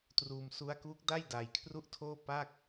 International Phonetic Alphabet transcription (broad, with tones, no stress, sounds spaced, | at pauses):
t r uː˧ m s u˦˥ a̯ k uː˦˥ k̚ d a˥˩ j d a˧ j kʰ r u˥˩ ʔ tʰ oː˥˩ p a˥˩ k̚